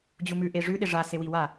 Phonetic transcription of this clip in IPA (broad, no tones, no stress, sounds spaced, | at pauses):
d͡ʑ u m ʉ ʔ e ʐ ʉ ɗ e ʐ a s e w i w a